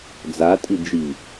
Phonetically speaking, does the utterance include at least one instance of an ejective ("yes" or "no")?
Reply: yes